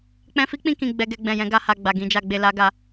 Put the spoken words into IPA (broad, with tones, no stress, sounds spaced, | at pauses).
k͡p ɛ̃˧ f i˦ k͡p ĩ˧ k ĩ˧ ɡ͡b ɛ˧ ɡ ɛ˧ ɡ͡b ɛ̃˨ j ɛ̃˨˦ ɡ a˦ h a˧ ɡ͡b a˨ ɡ ĩ˧ d͡ʒ a˧ ɡ͡b e˧ l a˦ ɡ a˧